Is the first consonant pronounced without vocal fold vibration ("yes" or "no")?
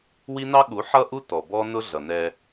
no